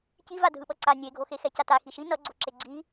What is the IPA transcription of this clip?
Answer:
civa dʱɯɓʌǀa nʲeɡʱoxe xɛcata xiʃi nʌɡ͡ǀoǁe ɡ͡ǀi

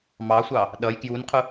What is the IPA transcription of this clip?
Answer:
mɑsʷɑ | ɗʌj kjunqʰʊ

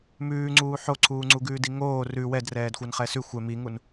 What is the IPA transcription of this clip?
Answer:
mʉːŋ͡ǀuː ħoǀʰuːŋ͡ǀuɡʉːd iŋoː rʉ wɛdrɛːdxʷan χɛsʉ xʷɛ miŋun

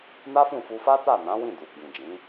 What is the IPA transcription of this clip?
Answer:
na˦fũ˦˨fu˧ fa˦ta˦˨ nã˨˦wĩ˦˨ du˨ɡ͡bĩ˨d͡ʒĩ˨˦

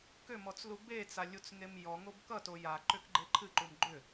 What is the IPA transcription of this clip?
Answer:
kʏmɔt͡slu bet͡salʲut͡sŋem jɔŋob kʌto jaǃʏkɡ͡ǃe ǃʰɨǃum ɡ͡ǃʏ

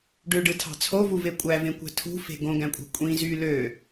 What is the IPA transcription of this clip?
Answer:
ɖøɖɯtʰɑ̤ t͡sʰovuve kʷʼævẽkʷæ̤ tʰṳfe̤ ɡõɡæ̃kʷʼæ̤ kʷʼĩ zy lø

